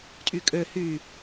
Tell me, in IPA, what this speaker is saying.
tʼ y kʼ ø h y

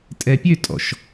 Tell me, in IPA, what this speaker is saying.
tʼ ɛ pʲ ø tʼ ɔ̰ ʃ

